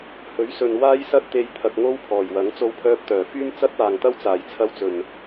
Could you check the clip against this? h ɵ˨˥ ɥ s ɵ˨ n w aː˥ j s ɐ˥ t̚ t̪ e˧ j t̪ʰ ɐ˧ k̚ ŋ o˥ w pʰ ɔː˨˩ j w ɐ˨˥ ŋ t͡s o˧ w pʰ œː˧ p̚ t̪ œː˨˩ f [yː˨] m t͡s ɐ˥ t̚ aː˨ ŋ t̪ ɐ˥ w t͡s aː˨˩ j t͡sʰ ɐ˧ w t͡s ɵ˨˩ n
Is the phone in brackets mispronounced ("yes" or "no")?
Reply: yes